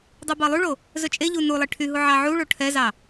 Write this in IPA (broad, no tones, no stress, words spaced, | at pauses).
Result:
dˤubɑlˠyɭo | zɵt͡ʃʼeʎu nulˠe ʈʰyɦu ʕɑʕuɭo ʈʰɛzɑ